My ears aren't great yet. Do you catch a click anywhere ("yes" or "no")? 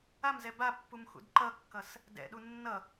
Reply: yes